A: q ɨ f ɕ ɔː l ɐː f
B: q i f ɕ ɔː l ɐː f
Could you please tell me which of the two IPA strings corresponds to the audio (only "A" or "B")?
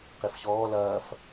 B